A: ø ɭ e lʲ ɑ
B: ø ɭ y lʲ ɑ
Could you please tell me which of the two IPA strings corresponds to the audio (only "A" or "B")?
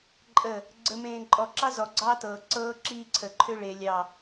A